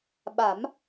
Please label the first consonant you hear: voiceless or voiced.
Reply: voiced